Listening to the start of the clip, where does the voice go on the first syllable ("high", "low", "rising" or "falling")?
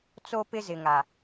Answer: high